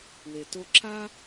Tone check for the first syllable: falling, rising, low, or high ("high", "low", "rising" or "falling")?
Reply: low